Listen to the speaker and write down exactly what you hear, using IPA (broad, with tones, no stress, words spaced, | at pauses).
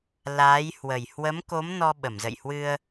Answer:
laː˨˦jhwə˨˩j hwə˨˦mko˨˦m nɔ˧ɓə˧˩m zə̰˧˨jhwɨ˧ə̯